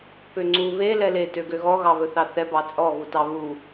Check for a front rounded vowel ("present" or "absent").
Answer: present